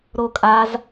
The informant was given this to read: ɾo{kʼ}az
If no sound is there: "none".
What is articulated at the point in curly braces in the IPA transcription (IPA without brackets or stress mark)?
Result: kʼ